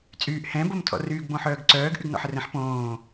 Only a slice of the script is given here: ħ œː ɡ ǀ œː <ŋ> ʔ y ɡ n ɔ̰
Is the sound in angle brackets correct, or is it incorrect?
incorrect